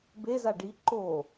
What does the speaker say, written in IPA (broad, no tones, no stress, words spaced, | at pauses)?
beza ɖi ǃo